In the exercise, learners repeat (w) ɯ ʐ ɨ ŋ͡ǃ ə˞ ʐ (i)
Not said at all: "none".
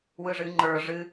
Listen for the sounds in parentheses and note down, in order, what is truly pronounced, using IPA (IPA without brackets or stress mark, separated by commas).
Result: w, ɨ